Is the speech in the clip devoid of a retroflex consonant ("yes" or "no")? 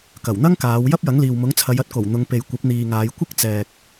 yes